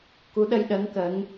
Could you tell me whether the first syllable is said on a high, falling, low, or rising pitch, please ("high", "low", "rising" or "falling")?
rising